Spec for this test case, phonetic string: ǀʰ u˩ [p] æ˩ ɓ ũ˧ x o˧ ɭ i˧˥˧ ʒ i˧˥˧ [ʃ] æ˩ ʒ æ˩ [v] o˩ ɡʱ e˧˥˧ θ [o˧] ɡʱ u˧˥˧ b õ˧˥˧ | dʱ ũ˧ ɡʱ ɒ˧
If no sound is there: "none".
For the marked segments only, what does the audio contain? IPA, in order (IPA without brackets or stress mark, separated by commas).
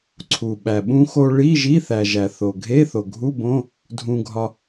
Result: ɓ, θ, θ, o˩